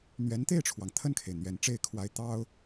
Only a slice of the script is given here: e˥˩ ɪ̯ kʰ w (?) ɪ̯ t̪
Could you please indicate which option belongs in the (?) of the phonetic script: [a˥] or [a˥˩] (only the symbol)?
a˥